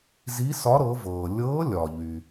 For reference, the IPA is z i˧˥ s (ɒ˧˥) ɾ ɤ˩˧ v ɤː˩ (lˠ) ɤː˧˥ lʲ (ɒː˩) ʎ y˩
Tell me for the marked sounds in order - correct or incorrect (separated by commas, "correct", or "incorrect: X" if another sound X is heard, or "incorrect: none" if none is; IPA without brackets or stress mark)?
correct, incorrect: lʲ, correct